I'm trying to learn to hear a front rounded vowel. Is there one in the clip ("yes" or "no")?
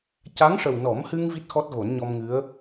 no